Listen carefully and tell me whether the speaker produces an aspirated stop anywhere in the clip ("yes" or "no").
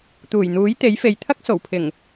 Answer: yes